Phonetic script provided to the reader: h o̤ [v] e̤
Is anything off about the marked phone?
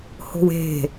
yes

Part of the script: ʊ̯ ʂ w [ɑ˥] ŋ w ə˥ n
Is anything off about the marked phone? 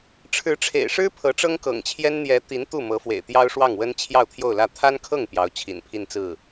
yes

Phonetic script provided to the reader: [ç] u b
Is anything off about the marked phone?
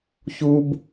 no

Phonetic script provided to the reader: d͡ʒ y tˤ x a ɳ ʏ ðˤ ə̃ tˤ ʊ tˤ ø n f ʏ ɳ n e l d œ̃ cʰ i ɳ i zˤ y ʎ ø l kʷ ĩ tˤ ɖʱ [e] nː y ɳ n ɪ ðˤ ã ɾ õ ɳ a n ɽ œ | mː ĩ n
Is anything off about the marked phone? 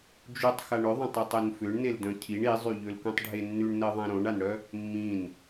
no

